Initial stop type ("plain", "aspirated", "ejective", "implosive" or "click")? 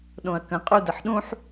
implosive